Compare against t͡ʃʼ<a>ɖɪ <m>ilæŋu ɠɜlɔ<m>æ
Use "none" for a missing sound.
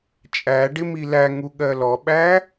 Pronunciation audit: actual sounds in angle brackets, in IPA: æ, m, ɓ

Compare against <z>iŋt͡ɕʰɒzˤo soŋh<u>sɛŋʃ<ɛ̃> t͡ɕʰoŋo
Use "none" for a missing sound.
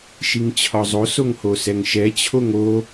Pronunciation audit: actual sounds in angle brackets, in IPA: ʃ, o, ɛ

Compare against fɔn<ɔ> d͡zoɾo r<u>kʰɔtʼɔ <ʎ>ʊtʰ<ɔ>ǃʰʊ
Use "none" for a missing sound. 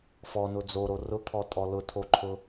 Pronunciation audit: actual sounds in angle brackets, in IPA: ʊ, ʊ, l, o

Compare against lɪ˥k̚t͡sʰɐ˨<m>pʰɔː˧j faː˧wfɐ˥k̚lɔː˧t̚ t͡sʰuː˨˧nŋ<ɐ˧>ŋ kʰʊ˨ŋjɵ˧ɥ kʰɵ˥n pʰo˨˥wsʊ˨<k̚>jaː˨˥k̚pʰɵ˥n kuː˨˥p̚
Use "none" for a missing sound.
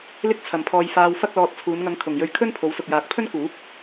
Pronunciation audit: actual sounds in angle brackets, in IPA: m, ɐ˧, k̚

